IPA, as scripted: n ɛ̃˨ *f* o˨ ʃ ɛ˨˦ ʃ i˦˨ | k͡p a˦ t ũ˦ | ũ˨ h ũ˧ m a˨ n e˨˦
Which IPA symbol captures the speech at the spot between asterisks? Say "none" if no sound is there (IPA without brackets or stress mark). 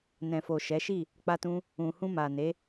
f